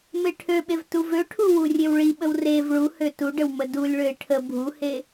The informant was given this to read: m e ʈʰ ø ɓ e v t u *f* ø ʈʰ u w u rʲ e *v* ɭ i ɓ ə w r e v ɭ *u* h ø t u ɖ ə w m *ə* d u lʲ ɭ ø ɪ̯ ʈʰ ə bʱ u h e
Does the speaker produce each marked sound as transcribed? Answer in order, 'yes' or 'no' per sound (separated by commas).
no, no, yes, yes